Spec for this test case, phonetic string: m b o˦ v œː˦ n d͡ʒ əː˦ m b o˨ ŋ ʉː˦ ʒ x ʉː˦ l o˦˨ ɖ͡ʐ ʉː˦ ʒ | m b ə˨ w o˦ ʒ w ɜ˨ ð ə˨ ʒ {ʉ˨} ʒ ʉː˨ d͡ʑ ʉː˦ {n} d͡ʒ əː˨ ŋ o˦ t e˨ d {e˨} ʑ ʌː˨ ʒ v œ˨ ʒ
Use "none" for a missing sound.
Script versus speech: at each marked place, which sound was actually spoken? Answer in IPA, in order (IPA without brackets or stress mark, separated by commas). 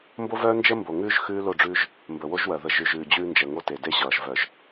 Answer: ʉ˨, n, e˦